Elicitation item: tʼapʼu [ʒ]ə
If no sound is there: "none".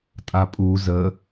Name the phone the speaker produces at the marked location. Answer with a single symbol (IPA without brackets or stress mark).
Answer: z